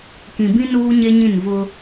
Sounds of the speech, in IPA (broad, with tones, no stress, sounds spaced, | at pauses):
k ĩ˨ b ĩ˦ n uː˦ ɲ e˦ ɲ ĩ˦˨ n v ʊ˦